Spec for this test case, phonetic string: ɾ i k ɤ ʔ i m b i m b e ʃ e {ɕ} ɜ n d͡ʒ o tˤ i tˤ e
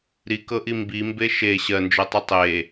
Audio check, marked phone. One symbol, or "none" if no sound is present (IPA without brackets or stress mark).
ɕ